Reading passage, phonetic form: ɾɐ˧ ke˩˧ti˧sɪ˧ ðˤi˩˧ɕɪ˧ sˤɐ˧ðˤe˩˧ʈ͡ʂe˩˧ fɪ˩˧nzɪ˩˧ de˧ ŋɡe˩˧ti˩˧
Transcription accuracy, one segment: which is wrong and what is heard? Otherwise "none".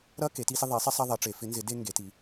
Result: ɕ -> sˤ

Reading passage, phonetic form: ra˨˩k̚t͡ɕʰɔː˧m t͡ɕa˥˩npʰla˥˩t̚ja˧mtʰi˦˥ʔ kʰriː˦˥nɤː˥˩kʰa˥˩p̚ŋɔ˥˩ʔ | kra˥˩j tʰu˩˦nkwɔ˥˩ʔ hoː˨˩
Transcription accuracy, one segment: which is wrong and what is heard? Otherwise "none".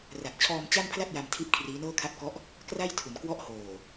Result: ŋ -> k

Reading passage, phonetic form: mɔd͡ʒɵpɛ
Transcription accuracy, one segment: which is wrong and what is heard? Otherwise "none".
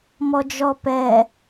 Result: ɵ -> ɔ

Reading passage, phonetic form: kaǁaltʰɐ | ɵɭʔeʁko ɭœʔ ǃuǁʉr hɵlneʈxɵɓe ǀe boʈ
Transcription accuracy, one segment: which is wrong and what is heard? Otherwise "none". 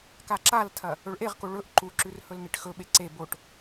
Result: œ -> ɵ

